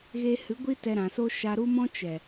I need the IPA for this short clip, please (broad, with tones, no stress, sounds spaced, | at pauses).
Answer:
ɣ e˧ h ɨ˨˦ ɡʷ i˦ t ɛ˧ ɾ ã˨ s o˦ ʃ a˧ ɾ u˦ m ɔ̃˦ t͡ʃ ɛ˨